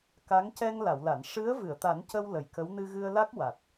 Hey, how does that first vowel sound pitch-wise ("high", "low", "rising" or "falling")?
rising